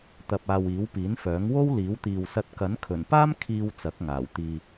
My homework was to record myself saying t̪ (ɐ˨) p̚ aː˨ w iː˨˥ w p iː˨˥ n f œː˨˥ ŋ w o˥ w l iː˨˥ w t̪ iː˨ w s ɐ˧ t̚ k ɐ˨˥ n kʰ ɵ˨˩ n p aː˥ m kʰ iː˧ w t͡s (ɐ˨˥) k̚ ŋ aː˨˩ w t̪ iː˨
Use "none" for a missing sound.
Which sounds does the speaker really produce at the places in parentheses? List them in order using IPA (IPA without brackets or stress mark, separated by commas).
ɐ˨, ɐ˨˥